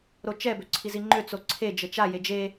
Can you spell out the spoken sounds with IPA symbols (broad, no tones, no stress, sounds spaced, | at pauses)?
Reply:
ɾ o t͡ʃ ɛ b ø ǀʰ i z i ŋ͡ǃ ø t͡s o ǀʰ e d͡ʒ ə t͡ʃ a j e d͡ʒ e